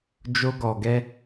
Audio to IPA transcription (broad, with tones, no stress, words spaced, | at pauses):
d͡ʒo˧ɡɔ˨ ɡɛ˧